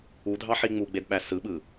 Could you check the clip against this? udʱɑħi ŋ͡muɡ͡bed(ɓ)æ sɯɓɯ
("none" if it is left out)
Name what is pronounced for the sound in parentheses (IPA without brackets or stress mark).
ɓ